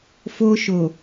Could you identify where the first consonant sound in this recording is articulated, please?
labial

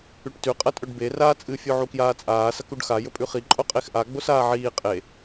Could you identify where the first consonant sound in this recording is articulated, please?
retroflex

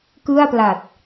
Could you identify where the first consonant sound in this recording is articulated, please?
velar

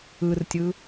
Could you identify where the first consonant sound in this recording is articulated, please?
alveolar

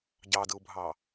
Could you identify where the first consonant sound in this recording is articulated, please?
palatal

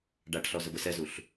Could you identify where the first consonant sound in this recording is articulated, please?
retroflex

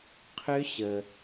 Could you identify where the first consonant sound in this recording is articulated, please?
uvular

